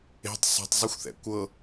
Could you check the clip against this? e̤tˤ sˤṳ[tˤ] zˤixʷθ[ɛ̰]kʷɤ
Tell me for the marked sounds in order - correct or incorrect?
correct, correct

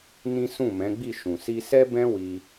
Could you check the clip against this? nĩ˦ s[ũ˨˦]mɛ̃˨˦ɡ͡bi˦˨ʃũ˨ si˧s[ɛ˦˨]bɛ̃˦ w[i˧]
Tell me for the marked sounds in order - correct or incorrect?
incorrect: ũ˦˨, incorrect: ɛ˦, correct

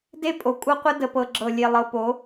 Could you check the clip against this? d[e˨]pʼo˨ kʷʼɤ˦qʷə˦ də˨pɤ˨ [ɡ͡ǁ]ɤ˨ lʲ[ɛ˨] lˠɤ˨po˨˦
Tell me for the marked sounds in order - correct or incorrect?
incorrect: e˦, correct, incorrect: e˨

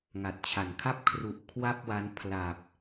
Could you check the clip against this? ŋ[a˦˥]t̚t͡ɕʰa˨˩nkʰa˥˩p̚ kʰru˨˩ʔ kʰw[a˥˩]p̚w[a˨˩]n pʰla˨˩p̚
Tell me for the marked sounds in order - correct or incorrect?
incorrect: a˨˩, correct, incorrect: a˦˥

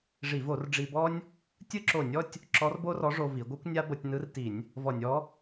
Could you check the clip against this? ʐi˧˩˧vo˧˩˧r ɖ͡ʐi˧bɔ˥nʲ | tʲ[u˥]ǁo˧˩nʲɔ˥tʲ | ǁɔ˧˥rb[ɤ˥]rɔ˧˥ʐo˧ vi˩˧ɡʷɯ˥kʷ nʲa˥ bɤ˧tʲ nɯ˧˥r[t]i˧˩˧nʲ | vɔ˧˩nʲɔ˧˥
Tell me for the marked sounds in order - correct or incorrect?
incorrect: ɯ˥, incorrect: o˥, correct

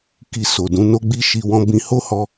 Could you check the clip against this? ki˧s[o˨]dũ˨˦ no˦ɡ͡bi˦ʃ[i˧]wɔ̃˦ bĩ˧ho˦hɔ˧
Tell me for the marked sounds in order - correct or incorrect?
correct, correct

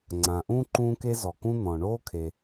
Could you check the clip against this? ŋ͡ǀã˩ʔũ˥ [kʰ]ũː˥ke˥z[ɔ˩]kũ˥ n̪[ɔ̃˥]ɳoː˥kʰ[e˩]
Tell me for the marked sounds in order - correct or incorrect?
incorrect: ǃ, correct, incorrect: ɔ̃˩, correct

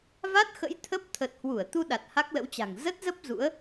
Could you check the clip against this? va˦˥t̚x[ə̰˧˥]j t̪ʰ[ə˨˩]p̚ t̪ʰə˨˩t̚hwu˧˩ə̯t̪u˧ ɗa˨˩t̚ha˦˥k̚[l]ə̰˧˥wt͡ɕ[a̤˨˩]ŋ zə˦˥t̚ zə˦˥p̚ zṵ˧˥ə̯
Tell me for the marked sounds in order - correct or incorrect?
correct, incorrect: ə˦˥, correct, correct

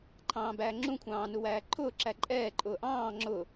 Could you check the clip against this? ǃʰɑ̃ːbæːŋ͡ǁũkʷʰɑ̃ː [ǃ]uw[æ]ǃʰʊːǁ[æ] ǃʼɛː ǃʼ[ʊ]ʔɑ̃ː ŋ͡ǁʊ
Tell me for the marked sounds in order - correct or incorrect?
incorrect: n, incorrect: æː, correct, incorrect: ʊː

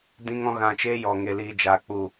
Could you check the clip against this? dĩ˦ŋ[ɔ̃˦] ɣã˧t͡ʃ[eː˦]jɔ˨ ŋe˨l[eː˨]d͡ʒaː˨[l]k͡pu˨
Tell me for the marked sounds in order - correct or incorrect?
correct, correct, incorrect: iː˨, incorrect: none

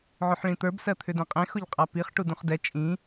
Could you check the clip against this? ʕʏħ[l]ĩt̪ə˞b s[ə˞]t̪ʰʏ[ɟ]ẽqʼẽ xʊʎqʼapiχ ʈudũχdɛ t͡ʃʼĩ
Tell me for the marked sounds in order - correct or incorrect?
incorrect: ɭ, incorrect: ɜ, incorrect: d

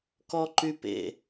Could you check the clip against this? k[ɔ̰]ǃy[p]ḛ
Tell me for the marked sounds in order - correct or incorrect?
incorrect: ɔ, correct

